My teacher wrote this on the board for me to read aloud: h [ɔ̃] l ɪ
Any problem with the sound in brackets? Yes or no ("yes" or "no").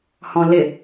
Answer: no